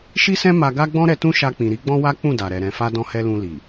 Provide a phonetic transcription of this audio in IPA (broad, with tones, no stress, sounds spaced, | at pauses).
ʃ i˦ s ɛ̃˦ m a˧ ɡ a˦ ɡ͡b ɔ̃˦ ɾ ɛ˧ t ũ˦ ʃ a˧ k͡p ĩ˨ ɾ i˨˦ ɡ͡b ɔ̃˦ w a˦ k͡p ũ˦˨ d a˨ ɾ ɛ˨ ɾ ɛ̃˨ f a˧ d ɔ̃˦ h ɛ˦ l ũ˧ l i˨